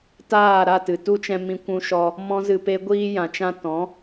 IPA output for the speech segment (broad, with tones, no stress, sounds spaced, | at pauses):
t aː˦˨ ɾ a˦˨ t ɨ˨ t u˦ t͡ʃ ɛ̃˧ m ĩ˧ kʷ ũ˧ ʃ ɔ˧ | m ɔ̃˦ z ɨ˧ p e˦ ɡʷ iː˧ j ã˨ t͡ʃ ã˧ t ɔ̃˨˦